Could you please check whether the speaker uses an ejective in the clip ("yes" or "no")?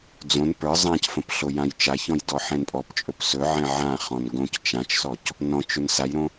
yes